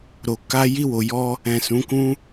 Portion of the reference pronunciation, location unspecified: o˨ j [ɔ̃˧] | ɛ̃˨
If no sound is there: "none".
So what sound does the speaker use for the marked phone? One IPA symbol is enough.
ɔ˧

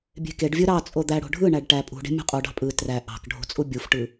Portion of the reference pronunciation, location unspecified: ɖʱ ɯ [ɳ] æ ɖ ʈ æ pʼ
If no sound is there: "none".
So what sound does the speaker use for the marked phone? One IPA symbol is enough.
ɳ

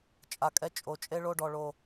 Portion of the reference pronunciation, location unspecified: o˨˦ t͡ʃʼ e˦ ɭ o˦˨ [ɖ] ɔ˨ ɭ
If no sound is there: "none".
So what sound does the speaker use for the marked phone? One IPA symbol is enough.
ɖ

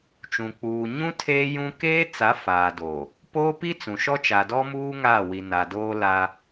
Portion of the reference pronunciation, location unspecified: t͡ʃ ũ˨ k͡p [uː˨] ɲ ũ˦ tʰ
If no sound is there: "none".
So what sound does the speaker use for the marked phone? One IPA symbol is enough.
uː˨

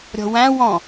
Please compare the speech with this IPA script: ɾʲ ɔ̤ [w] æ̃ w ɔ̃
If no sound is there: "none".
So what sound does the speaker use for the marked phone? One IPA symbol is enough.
w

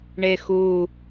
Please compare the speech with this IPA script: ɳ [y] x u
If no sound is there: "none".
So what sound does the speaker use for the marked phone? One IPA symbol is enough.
e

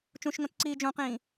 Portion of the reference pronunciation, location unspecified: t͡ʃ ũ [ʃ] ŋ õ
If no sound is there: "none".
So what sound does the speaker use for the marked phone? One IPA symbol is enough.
ʃ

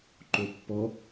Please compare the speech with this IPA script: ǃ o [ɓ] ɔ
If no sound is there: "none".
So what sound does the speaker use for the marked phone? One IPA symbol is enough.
pː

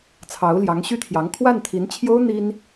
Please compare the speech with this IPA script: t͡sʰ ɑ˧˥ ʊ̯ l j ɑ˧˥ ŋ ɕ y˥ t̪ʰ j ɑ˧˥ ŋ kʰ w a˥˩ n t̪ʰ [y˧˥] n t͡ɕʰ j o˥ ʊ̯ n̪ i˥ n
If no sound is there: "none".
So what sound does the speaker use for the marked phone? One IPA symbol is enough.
i˧˥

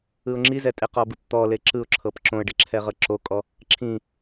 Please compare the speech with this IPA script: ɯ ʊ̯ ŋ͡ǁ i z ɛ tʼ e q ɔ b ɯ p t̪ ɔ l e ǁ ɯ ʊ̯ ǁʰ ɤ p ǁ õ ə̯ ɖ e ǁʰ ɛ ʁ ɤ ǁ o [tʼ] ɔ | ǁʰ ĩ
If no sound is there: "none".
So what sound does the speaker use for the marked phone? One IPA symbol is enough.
kʼ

